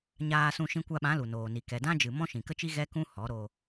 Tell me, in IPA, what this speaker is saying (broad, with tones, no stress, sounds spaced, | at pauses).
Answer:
ɲ aː˧ s ũ˧ ʃ ĩ˧ kʷ a˧ ɓ ã˨˦ l u˨ n oː˨ n i˨ k ɛ˨ d ã˦ d͡ʒ ɨ˨ m ɔ̃˦ ʃ ĩ˨ k ə˦ t͡ʃ i˦ ɣ ɛ˦ k ũ˦ h ɔ˨˦ ɾ o˧